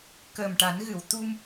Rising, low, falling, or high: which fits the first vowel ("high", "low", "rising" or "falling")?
low